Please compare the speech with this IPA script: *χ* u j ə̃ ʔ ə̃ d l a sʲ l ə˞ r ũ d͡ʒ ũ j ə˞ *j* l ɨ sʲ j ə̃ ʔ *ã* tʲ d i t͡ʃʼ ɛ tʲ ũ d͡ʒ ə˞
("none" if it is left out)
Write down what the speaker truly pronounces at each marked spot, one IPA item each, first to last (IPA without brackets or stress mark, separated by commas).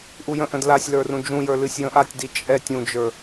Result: ʔ, none, a